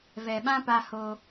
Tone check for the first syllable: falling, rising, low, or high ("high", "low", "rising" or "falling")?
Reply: low